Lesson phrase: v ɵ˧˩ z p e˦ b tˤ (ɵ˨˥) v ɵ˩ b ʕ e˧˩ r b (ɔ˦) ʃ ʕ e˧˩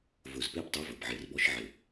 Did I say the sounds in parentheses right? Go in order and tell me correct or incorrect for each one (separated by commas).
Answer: correct, correct